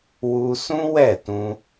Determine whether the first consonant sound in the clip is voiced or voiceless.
voiced